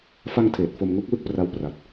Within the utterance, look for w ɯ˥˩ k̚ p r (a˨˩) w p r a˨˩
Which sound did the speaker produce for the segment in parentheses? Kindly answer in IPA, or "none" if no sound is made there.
a˦˥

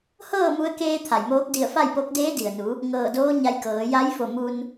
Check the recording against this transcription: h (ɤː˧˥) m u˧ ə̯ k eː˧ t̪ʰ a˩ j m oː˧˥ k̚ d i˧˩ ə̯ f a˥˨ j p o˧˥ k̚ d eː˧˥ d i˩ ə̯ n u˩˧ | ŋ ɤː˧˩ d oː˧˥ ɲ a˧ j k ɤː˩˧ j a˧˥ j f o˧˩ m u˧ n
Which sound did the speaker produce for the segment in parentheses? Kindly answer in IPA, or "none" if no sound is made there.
ɤː˥˨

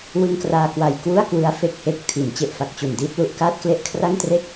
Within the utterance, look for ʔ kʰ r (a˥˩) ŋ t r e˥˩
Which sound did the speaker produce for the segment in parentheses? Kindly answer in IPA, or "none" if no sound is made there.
a˥˩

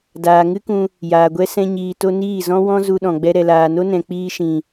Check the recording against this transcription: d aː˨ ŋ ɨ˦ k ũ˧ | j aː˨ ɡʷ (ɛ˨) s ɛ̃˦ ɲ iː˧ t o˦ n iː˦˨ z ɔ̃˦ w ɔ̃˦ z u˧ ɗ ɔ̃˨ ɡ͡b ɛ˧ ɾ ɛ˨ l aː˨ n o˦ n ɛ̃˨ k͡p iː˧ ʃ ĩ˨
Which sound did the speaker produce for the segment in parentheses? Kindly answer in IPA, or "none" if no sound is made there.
ɛ˦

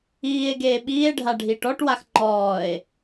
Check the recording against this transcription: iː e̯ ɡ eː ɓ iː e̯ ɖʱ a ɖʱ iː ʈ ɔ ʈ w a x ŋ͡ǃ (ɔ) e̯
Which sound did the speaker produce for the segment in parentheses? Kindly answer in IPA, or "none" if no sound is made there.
ɔː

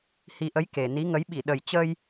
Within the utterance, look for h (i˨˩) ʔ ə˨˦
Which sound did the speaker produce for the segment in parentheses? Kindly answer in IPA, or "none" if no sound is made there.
i˨˩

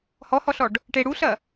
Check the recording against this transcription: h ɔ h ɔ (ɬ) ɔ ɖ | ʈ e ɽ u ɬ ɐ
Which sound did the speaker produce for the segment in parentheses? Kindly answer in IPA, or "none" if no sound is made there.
ɬ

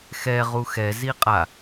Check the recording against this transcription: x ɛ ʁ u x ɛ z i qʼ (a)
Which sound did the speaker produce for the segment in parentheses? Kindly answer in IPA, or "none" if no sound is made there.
a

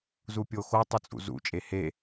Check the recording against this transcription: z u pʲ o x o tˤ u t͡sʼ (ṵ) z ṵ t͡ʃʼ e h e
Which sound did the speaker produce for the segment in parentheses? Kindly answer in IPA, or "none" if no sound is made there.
ṵ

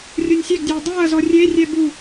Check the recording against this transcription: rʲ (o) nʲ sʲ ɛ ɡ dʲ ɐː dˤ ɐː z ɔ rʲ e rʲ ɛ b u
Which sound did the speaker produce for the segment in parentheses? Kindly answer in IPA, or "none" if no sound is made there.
o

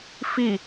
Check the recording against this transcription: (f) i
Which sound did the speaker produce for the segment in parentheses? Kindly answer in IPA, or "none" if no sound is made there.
f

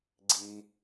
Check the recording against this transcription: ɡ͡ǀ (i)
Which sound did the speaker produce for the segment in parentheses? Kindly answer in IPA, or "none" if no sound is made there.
i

